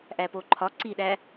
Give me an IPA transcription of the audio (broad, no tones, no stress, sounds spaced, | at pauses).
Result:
ʔ æ p o ǃʰ ɒ ǀ i ɗ æ